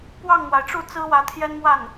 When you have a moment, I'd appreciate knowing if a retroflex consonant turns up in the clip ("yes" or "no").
yes